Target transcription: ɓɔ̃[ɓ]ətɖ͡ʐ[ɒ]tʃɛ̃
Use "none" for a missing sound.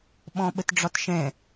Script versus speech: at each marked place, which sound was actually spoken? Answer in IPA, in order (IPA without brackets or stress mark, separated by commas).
ɓ, ɒ